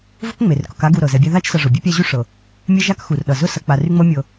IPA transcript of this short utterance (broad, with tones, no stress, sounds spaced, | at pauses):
v ʊ˥ k ŋ͡m e˩ r k ʊ˨ k a˦ ɡ u˨ ɾ ɤ˩ z ɛ˨ bʲ a˦ ð a˦ t͡ʃ s ʌ˨ ʐ ʊ˩ bʲ e˥ pʲ a˦ ʑ y˥ ʂ ɤ˩ | mʲ ɛ˥ ʒ a˥ k x u˩ r ɗ ʌ˩ z ʊ˥ s ʌ˨ k͡p a˨ r y˦ ŋ͡m ɤ˦ mʲ ɤ˨